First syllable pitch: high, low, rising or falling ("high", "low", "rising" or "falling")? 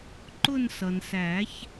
falling